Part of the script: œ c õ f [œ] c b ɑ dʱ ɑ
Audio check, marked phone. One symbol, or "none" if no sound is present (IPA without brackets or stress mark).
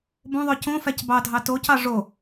æ